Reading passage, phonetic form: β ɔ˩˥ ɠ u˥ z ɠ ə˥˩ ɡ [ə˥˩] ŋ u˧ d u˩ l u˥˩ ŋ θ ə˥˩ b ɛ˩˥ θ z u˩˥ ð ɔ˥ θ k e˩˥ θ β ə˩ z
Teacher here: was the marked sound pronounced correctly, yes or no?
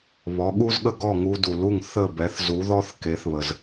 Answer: no